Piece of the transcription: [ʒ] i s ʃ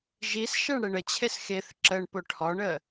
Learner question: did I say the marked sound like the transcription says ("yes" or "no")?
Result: yes